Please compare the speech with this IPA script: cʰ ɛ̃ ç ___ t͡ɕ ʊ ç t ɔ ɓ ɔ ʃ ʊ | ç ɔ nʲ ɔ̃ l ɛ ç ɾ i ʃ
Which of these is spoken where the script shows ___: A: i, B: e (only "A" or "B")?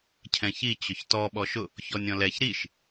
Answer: A